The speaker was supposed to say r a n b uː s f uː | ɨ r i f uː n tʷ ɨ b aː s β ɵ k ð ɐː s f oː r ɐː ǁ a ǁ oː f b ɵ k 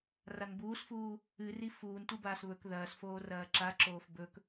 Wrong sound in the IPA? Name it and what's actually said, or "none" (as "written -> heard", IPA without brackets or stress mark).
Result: none